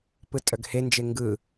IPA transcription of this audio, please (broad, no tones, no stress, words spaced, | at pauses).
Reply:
pɯtʼœɡhend͡ʒe ŋɡɯ